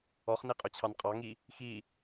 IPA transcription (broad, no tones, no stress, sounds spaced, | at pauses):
ɔ χ n i qʼ ɵ t͡ɕʰ ɑ n qʼ ɑ ŋ i | x i